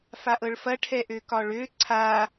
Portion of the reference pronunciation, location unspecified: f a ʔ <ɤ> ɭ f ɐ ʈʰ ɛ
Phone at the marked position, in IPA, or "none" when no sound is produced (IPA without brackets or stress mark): ɤ